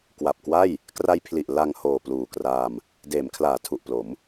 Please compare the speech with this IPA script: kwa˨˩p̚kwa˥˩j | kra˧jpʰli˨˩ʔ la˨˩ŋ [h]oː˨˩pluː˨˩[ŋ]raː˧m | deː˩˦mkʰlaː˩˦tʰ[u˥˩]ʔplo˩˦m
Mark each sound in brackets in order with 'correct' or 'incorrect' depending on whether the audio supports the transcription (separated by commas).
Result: correct, incorrect, incorrect